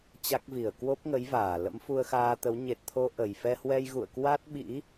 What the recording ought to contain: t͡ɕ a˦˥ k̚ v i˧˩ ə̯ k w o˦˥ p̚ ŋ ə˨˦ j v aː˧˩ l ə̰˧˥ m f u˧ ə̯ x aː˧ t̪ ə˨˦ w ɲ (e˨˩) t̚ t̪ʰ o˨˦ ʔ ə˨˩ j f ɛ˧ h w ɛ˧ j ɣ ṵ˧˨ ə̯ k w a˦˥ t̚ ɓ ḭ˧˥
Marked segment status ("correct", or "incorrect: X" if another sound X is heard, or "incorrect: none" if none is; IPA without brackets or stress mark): correct